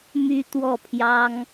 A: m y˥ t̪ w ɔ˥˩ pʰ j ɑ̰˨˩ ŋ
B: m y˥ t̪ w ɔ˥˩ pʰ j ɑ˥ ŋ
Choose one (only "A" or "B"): B